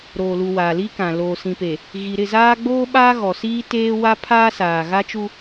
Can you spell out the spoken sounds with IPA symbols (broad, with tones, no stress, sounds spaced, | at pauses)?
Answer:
ɾ oː˨ l u˨ w aː˨ l i˦ k ã˨ l oː˨ s ĩ˨ p e˨ | ɣ i˨ ɾ ɪ˦˨ z aː˦ ɡ͡b oː˦ ɓ aː˦ ɣ ɔ˨ s iː˦ t eː˦ w a˦ pʰ aː˦ s aː˨ ɣ a˦ t͡ʃ u˦